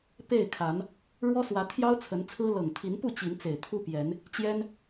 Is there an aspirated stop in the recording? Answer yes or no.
yes